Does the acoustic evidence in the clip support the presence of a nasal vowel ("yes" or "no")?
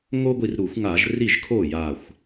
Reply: no